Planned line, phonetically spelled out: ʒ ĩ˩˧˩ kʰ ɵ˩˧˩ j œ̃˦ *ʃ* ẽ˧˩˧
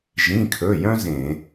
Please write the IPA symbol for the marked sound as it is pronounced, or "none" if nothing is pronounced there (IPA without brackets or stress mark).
z